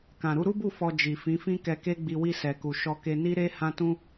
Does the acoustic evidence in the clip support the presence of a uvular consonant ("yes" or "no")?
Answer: no